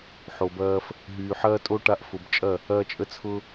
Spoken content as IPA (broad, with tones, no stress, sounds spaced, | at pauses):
ħ o˨ b ɐː˧ f | ɦ yː˨ ħ ɐː˦ tʼ o˦ ʈ a˧ ʔ f ʊ˨ b t͡ʃʼ ɐ˦˨ | ɐː˧ t͡ʃʼ ə˧ t͡sʰ ʊ˧